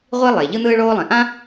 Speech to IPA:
ʁʷi˥lˠe˩ ʎɯ˥n̪ɯː˥ɭoː˥lˠɛ̃˩ ʔã˥

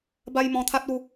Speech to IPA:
ba˧j mɔ̃˧t̪ʰa˦t̚u˧

